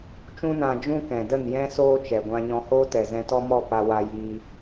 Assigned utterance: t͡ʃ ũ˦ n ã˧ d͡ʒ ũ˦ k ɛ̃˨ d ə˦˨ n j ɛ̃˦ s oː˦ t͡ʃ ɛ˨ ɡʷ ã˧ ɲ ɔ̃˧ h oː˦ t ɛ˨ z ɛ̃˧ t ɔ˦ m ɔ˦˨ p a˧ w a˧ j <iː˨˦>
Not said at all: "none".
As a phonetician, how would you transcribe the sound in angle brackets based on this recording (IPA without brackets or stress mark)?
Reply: iː˧